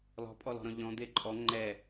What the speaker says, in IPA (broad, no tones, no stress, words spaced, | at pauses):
lɔ̤pʼɔlɔ̤ɾɔ̃ ʎɔ̃d̪e ǃʼɔ ŋ͡ǃɛ